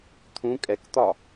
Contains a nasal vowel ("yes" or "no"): yes